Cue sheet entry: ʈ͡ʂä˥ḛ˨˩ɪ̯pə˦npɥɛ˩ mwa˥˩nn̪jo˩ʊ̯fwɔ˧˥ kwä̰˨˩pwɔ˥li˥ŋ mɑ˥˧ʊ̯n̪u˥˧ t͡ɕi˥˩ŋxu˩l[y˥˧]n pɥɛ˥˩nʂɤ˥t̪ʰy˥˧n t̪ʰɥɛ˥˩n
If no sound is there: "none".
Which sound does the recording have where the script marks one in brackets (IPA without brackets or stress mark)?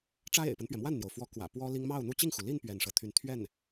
i˥˧